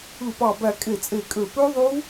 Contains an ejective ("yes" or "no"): yes